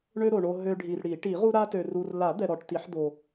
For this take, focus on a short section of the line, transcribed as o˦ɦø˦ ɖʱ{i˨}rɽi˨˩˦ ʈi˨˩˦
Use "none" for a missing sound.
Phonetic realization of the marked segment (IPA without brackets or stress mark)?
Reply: i˨